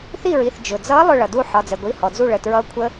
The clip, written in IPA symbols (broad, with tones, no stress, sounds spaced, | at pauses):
θ i˥˨ ɹ i˩˧˩ θ d͡ʒ ʊ˩ d͡z ʌ˧˥ lˠ ʊ˥˨ ɭ ʌ˩ d u˥˨ ħ ɒ˩˧˩ d͡z ɛ˩ ɡʷ i˩˧˩ h ɔ˩ d͡z u˥˨ ɭ ə˩˧˩ t ɹ ʌː˧˥ kʷʰ ə˧˥